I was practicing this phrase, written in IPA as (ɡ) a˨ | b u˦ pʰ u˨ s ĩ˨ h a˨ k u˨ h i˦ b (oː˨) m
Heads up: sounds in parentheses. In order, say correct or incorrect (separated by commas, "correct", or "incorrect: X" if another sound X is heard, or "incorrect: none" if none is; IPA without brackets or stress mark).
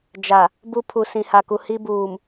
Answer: incorrect: d͡ʒ, incorrect: uː˨